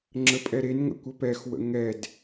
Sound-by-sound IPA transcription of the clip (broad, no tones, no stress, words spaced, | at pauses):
ŋ͡ǁəpʼɛɾenŋə̰ kʷəpɛxwə̰ ŋɛd